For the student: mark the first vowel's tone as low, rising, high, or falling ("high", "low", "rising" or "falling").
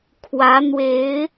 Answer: rising